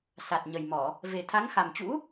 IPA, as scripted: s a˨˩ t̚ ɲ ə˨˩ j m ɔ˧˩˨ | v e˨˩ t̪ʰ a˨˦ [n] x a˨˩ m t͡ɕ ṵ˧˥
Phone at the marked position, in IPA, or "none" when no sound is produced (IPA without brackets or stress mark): ŋ